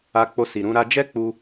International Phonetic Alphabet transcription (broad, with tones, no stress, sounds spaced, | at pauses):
a˧ k͡p o˧ s i˨ ɾ ũ˨˦ ɾ a˧ d͡ʒ ɛ˦ k͡p u˧